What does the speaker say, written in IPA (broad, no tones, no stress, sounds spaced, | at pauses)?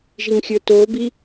ʒ i ŋ xʲ ə˞ t o b i